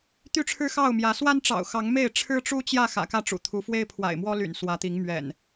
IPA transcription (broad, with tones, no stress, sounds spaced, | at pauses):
t̪ y˥˨ ʈ͡ʂʰ ɻ̩˦ x ɑ˥˨ ʊ̯ m j ä˨˦ s w a˦ n ʈ͡ʂ ɑ̰˨˩ ʊ̯ x ɑ˨˦ ŋ m e˥˨ ɪ̯ ʈ͡ʂʰ ɻ̩˦ ʈ͡ʂ u˦ t͡ɕ j ä˥˨ x ä̰˨˩ k ä˥˨ ʈ͡ʂ ṵ˨˩ t̪ʰ u˨˦ f w e˦ ɪ̯ pʰ w a̰˨˩ ɪ̯ m w ɔ˦ l y̰˨˩ n s w ä˨˦ t̪ i˨˦ ŋ m ɥ ɛ̰˨˩ n